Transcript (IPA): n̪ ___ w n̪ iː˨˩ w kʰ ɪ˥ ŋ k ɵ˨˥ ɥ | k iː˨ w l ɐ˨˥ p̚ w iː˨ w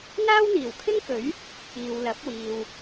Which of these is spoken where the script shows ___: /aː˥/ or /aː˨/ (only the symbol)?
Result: aː˥